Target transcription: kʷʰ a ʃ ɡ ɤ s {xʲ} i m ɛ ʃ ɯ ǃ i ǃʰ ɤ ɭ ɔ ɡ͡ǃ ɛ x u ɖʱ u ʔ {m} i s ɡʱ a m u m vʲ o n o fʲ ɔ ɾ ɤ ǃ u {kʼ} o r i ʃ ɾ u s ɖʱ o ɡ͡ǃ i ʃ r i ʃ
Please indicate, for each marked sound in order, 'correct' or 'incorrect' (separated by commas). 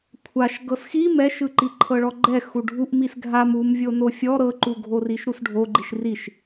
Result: incorrect, correct, incorrect